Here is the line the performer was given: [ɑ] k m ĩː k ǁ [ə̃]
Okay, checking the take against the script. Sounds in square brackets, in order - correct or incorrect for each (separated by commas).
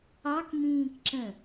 correct, correct